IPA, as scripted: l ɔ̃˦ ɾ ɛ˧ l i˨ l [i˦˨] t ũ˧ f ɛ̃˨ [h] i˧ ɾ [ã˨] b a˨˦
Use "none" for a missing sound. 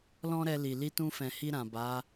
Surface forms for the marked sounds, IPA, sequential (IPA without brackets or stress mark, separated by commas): i˧, h, ã˨